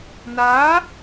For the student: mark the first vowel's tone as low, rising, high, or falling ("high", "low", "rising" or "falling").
rising